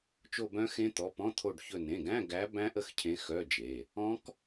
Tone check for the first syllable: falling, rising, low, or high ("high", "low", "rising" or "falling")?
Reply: falling